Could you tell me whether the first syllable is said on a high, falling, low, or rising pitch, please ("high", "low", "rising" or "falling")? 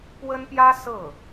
high